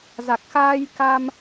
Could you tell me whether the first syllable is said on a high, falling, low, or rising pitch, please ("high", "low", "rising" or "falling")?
low